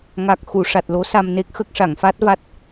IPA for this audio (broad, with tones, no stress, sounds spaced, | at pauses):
ŋ a˨˩ k̚ x u˨˩˨ ʂ a˨˩ t̚ l o˧˥ s a˧ m n e˦˥ k̚ x ə˦˥ k̚ ʂ a˨˩˨ ŋ f a˦˥ t̚ v a˦˥ t̚